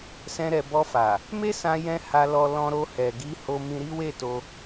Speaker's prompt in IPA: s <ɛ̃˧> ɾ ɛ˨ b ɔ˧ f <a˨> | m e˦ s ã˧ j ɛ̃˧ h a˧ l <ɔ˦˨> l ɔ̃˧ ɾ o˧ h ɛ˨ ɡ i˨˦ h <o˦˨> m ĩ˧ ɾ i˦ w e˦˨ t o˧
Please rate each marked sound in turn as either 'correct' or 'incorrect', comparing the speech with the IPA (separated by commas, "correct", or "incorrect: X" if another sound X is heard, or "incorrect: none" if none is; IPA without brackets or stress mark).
correct, correct, incorrect: ɔ˧, incorrect: o˧